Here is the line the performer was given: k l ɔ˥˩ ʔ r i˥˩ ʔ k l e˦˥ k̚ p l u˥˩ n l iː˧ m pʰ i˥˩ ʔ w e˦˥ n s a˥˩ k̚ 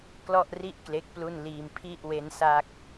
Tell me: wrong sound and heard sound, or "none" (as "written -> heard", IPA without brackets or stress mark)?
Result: none